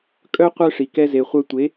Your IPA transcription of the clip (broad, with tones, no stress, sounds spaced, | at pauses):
kʼ œ˦ qʷ œ˦ ʂ i˨ k ɛ˧ z e˨ χʷ œ˧ tʷ e˨˦